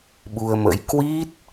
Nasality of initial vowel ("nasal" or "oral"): oral